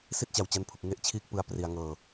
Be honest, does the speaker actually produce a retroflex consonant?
no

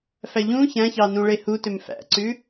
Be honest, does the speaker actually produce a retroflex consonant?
yes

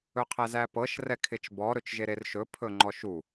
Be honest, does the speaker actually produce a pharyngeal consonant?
no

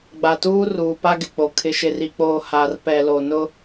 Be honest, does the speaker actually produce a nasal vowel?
no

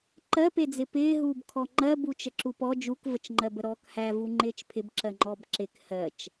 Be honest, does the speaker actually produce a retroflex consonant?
no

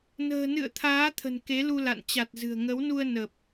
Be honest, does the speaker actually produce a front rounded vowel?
no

